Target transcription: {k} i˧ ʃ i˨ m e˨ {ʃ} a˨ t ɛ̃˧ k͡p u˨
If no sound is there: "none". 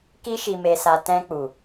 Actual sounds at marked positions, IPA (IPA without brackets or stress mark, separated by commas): k, s